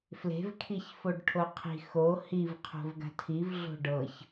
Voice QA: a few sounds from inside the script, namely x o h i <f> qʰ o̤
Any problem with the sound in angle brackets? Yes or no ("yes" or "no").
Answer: yes